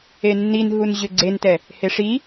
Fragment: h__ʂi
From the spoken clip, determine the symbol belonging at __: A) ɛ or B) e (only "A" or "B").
B